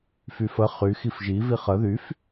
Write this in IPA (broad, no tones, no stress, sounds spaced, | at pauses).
f y f ə χ y x i f ʒ i v i χ ə ð y f